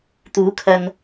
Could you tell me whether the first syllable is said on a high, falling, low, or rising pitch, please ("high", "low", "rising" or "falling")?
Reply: rising